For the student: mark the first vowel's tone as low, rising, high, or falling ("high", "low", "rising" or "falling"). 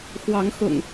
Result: rising